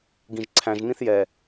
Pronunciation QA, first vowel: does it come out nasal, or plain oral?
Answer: nasal